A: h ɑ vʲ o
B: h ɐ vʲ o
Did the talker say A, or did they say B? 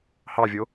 A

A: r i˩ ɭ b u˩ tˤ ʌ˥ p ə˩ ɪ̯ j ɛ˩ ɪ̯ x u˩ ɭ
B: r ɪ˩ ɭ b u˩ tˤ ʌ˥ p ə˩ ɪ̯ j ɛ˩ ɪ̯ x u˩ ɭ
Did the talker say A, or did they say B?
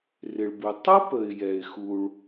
B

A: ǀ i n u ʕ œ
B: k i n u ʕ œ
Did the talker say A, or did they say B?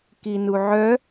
B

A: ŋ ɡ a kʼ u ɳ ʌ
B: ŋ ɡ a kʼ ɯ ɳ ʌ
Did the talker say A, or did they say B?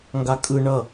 B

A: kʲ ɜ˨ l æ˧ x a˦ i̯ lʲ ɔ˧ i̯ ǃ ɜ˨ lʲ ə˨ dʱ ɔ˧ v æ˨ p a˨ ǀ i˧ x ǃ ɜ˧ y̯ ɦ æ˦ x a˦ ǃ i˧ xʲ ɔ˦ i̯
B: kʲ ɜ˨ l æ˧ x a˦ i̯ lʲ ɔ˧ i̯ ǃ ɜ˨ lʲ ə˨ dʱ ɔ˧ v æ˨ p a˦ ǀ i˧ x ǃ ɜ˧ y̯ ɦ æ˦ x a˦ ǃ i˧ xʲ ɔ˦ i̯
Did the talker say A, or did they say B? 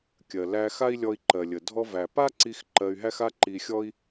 B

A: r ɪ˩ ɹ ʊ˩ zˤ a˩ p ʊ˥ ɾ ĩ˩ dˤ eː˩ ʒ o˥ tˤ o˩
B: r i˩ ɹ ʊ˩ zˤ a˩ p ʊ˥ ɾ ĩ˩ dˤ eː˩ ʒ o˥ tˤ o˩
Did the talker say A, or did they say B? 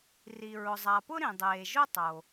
B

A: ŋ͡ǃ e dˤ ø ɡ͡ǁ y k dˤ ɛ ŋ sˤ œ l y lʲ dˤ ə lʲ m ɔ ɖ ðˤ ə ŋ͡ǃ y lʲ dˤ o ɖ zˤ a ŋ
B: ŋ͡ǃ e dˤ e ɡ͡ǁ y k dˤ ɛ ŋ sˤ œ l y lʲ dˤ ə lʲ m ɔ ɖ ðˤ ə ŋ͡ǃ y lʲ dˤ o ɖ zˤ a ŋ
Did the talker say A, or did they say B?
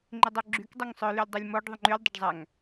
A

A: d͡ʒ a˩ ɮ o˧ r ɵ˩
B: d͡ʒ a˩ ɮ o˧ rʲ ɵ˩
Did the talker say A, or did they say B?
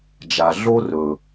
A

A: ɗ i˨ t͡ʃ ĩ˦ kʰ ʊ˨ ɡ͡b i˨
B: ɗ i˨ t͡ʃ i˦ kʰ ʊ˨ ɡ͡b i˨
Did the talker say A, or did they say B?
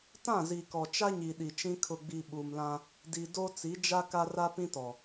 A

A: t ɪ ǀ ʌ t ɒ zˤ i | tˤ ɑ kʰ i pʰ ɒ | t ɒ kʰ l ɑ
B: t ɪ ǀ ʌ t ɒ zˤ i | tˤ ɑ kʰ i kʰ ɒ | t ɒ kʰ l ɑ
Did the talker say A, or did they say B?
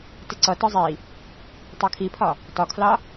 A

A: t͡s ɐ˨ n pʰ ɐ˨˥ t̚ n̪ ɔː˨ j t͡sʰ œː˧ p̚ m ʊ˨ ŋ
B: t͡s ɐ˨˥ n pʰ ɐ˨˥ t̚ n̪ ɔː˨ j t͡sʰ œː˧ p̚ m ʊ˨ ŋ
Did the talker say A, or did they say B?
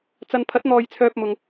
A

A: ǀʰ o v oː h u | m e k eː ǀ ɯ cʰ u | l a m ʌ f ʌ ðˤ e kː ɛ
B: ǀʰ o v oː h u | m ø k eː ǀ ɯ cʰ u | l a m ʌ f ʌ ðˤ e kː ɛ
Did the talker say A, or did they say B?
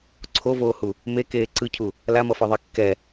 A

